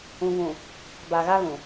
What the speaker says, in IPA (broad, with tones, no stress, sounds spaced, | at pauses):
ũ˨ v ũ˨ | b a˨ ɣ a˦ ɣ ũ˨